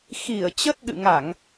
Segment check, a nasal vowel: absent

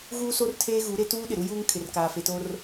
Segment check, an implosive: present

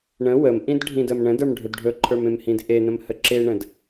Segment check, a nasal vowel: present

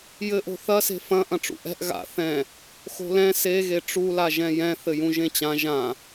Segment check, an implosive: absent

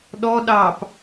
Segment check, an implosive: present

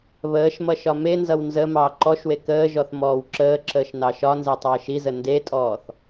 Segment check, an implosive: absent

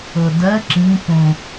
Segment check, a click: present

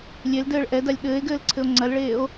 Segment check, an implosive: present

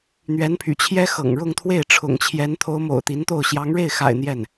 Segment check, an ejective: absent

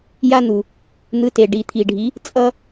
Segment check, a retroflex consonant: present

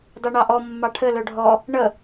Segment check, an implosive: absent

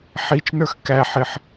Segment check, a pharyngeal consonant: present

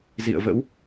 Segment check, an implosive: absent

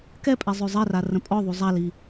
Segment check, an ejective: present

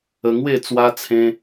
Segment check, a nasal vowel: present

